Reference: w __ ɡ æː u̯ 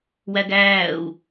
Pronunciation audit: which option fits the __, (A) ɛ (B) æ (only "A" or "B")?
B